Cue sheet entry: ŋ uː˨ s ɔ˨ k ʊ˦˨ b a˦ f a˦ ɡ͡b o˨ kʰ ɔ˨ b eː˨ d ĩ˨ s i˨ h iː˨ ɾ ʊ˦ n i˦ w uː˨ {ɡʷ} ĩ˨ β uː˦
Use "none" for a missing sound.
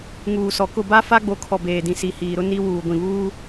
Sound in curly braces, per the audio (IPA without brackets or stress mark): ɡʷ